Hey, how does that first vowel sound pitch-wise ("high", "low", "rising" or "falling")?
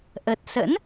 low